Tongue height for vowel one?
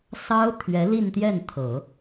low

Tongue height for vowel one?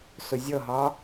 high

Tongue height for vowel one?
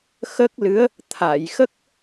mid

